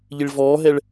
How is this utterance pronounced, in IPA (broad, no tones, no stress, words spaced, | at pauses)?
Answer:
ʎiɭvɔːɦɛɭ